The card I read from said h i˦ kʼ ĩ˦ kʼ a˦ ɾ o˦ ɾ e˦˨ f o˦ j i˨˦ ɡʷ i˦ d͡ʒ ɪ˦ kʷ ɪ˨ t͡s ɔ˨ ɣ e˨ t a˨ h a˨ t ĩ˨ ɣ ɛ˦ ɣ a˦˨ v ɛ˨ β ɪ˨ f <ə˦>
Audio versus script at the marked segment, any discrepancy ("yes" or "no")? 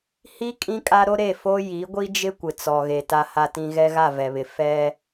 yes